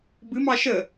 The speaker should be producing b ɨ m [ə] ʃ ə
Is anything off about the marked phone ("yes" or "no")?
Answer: yes